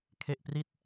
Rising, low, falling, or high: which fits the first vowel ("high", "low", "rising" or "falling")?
low